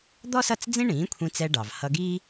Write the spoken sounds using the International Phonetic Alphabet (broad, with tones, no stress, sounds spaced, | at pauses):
d̪ ɔ˥ s ʌ˥˩ t͡s d͡z ĩ˥ ɳ ĩː˩˥ kʷʰ ĩ˧ t͡s ɛ˧ ɖ ɑ˩ v h ʌ˧ ɡ iː˥